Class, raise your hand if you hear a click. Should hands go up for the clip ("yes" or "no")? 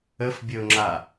yes